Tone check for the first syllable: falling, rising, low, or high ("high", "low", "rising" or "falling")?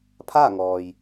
falling